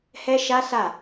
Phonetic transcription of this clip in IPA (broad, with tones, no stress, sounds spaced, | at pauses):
h ɛ˦ ʃ a˦ s a˦˨